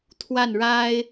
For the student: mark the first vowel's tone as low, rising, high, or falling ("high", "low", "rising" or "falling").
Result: falling